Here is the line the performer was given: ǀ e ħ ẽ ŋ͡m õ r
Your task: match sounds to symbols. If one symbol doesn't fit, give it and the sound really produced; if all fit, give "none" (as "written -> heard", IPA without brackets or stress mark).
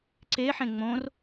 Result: none